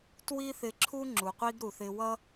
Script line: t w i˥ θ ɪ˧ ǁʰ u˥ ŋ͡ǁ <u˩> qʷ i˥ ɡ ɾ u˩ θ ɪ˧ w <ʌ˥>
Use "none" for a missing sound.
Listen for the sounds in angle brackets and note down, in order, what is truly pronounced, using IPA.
u˩, ʌ˥

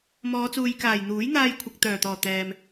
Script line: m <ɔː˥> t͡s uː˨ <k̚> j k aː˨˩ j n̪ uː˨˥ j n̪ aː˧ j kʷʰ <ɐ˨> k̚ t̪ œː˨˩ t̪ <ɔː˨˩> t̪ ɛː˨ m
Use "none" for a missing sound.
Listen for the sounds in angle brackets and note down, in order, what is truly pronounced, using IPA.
ɔː˨˧, none, ɐ˨, ɔː˨˩

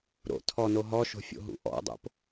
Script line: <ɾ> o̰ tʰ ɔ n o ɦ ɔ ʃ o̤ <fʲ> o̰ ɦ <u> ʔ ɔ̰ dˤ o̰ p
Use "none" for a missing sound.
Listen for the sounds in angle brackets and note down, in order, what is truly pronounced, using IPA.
ɾ, fʲ, ṵ

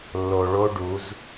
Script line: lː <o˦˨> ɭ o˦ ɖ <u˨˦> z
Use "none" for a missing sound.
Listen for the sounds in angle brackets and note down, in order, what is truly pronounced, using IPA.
o˨, u˨˦

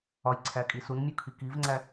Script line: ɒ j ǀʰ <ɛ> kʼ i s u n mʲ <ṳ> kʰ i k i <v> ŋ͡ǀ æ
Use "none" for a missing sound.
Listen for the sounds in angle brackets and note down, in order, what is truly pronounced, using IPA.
æ, u, v

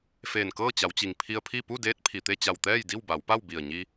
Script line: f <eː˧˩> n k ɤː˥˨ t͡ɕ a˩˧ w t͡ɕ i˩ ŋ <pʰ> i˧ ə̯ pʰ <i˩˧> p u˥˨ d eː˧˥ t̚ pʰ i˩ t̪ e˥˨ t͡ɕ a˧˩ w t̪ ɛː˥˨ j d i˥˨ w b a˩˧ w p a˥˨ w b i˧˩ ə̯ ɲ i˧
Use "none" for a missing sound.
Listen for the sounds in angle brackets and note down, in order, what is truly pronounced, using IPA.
eː˧˩, pʰ, i˥˨

